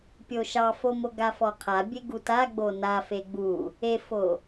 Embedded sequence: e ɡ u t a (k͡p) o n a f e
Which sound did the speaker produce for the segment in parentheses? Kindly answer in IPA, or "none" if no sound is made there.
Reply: ɡ͡b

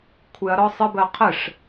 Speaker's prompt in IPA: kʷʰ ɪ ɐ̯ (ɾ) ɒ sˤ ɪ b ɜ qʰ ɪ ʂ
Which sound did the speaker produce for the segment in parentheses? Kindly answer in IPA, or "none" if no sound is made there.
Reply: ɾ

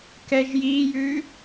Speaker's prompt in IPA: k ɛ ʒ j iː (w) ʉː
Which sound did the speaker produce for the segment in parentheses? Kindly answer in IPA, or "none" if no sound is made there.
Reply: j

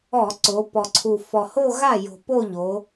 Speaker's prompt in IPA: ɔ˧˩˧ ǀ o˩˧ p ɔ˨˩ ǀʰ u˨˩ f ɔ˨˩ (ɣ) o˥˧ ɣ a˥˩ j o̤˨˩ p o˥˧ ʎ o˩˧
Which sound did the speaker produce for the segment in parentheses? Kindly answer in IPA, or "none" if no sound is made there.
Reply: h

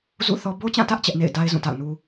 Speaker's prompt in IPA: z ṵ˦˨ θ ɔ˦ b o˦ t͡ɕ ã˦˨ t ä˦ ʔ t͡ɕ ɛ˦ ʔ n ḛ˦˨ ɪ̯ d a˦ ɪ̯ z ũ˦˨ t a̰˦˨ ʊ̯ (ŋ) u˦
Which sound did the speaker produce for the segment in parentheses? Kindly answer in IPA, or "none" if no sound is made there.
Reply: n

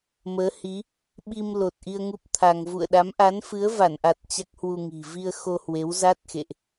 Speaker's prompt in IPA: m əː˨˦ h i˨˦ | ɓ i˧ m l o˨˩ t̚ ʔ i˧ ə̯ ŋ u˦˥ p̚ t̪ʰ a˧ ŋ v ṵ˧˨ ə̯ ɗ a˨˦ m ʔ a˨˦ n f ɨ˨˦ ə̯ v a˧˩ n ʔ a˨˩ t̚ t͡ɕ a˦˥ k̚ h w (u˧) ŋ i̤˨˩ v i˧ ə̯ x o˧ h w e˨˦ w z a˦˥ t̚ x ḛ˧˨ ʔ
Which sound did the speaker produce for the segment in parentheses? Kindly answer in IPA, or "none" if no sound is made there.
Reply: u˧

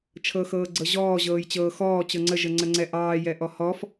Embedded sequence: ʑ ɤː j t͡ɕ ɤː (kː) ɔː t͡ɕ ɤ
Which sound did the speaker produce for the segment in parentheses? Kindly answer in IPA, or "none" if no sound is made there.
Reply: x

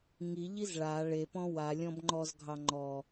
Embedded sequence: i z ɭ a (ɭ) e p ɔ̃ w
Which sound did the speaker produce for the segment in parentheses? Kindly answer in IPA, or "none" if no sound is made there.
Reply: ɭ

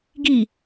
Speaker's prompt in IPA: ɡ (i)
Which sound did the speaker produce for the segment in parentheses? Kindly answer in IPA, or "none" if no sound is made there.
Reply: i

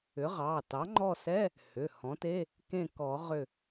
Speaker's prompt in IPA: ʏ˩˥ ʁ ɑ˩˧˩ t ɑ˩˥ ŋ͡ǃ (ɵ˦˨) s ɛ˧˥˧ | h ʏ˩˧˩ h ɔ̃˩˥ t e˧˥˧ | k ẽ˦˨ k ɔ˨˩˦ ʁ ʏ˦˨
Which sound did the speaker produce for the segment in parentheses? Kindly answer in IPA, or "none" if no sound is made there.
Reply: ɔ˦˨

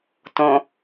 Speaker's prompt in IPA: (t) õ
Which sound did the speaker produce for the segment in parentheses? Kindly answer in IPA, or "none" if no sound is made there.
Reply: t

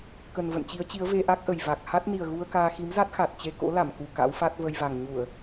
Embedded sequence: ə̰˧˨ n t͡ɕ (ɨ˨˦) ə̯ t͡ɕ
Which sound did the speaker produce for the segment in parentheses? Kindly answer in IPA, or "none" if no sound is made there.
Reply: i˨˦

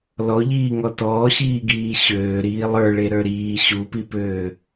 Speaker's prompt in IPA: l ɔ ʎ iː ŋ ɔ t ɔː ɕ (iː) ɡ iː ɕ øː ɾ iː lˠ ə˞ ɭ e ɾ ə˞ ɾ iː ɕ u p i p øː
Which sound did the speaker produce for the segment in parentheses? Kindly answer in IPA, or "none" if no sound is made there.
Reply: iː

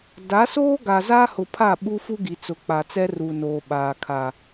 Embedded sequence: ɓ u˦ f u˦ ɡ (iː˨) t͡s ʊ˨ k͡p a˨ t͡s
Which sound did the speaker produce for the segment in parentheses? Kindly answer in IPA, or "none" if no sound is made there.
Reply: i˨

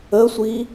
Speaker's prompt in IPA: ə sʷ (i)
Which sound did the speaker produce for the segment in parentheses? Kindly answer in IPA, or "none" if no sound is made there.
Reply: i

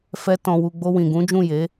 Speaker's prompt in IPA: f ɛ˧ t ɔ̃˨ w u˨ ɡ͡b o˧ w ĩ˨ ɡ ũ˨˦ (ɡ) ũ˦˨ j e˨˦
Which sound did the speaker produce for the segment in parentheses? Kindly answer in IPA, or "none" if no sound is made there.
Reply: d͡ʒ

